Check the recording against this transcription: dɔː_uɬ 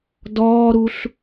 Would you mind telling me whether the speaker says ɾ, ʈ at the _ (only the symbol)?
ɾ